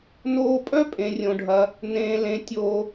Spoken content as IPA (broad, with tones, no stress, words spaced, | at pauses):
noː˦pʼœ˥ pʼẽ˥rʲõ˥ɖʱɐ˥ | nẽː˥lẽ˥ tʲoː˦